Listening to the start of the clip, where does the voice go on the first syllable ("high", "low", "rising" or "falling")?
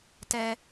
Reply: high